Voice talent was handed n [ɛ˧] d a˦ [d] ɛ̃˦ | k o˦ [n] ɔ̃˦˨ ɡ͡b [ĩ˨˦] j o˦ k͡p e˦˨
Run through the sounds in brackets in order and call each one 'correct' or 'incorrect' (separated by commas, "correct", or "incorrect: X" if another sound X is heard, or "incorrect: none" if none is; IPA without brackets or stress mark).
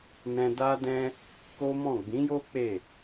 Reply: incorrect: ɛ̃˧, correct, incorrect: m, correct